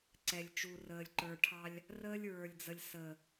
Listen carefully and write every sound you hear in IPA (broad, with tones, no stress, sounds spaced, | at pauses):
ǀ ɛ˨ lʲ t͡ʃ u˨ r əː˨ lʲ ǃ ə˞˨ ʈʰ ɑ˦ lʲ | r əː˦ lʲ ɹ ə˞˨ lʲ d͡z ə˨ lʲ s ə˨